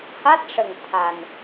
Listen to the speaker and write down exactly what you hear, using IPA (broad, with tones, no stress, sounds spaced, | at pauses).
h a˦˥ t̚ ʂ ə˨˩ ŋ t̪ʰ a˨˩ n